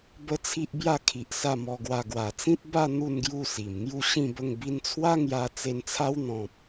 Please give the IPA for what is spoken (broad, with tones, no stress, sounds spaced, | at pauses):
b ə˦ t͡sʰ i˦ ʔ b j a˥˧ kʰ i˨ ʔ s a˥˧ m ɔ˧ ɡ w a˧ ɡ w a˨˩ t͡s ĩ˦ t̚ b a˥˧ n̪ u˥˧ n ɡ j u˥˧ s i˨˩ m ŋ j u˥˧ ɕ ĩ˥˧ b ə˥˧ ŋ b i˧ n t͡sʰ w a˦ ŋ j a˧ t͡s e˧ n t͡sʰ a˦ w n̪ ɔ̃˨ p̚